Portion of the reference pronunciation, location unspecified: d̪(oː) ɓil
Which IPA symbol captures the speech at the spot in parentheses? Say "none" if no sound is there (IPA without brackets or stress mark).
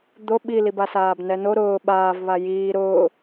o